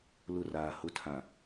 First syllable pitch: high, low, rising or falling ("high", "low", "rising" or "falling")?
falling